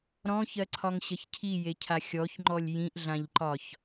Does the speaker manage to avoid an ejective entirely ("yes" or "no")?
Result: yes